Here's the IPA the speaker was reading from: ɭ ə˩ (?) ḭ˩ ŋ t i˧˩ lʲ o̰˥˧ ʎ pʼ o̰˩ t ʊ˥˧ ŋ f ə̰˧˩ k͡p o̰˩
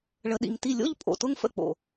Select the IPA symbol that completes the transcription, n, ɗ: ɗ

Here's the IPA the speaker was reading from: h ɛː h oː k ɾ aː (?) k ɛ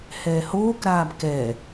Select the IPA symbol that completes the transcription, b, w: b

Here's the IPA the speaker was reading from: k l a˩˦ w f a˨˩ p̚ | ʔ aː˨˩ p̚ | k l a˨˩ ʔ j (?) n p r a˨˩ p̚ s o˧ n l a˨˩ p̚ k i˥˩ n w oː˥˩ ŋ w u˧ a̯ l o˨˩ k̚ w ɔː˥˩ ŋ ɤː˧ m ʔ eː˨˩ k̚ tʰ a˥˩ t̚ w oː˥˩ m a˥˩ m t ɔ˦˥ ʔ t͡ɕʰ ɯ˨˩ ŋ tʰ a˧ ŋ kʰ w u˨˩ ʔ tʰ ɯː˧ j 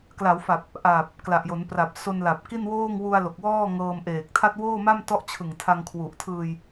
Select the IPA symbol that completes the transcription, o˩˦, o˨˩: o˩˦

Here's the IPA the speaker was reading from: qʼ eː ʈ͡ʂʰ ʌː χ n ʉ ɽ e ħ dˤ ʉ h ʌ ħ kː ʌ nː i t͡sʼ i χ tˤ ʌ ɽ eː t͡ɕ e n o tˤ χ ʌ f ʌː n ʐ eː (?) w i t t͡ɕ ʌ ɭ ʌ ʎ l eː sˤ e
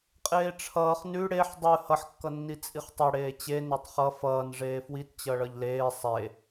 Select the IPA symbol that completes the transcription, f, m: f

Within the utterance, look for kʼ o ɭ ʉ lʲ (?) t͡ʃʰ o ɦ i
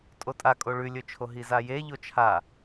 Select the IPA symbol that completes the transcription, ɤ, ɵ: ɵ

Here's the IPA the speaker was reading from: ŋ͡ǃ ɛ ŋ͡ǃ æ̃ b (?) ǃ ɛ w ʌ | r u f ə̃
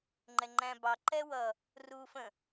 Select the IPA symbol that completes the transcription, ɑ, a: ɑ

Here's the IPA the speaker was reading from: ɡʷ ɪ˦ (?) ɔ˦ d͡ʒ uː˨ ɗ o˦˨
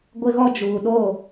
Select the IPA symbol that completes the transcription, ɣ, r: ɣ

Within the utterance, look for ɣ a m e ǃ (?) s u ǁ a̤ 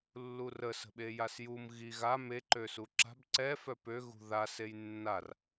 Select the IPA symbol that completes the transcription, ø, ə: ø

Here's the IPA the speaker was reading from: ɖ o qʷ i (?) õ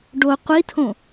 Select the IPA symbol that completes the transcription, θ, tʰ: tʰ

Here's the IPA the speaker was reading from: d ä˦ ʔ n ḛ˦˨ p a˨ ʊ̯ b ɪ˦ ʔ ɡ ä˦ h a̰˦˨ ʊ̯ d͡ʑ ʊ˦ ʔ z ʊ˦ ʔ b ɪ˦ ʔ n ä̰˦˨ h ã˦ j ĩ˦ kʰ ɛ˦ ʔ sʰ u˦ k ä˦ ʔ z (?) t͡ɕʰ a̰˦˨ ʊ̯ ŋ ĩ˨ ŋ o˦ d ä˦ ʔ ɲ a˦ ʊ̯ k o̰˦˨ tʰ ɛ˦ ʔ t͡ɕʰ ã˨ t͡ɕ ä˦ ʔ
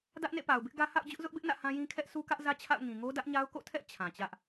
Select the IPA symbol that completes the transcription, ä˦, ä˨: ä˦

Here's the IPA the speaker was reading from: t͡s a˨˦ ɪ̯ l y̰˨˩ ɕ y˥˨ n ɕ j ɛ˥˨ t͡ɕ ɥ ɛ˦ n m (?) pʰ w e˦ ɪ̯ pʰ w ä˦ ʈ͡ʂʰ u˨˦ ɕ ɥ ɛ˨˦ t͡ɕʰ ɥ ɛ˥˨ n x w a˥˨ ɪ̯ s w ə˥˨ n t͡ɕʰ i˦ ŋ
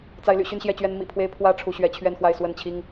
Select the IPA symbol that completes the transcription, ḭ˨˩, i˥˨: ḭ˨˩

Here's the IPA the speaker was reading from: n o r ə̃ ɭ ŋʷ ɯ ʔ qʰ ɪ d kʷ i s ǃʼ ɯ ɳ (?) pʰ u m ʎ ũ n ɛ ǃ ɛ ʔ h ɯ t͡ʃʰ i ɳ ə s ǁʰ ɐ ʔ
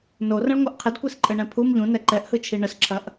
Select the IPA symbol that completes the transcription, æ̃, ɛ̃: ɛ̃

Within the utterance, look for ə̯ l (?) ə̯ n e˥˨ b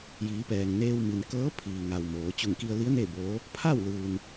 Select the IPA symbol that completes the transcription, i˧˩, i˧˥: i˧˥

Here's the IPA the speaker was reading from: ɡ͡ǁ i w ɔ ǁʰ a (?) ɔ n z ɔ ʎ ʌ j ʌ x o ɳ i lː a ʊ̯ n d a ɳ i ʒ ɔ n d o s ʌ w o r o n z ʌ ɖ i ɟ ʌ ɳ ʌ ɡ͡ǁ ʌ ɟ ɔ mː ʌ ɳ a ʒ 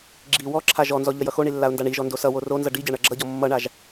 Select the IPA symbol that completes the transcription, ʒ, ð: ʒ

